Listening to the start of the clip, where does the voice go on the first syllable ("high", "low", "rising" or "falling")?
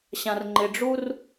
low